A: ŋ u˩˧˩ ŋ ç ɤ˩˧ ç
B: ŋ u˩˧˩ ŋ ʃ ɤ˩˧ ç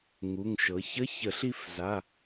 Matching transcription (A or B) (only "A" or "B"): B